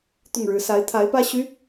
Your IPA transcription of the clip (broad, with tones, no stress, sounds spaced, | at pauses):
t̪ ʊ˥˩ ŋ ɻ ɻ̩˧˥ s a˧˥ ɪ̯ t̪ʰ a˧˥ ɪ̯ p ä˥ ɕ y˧˥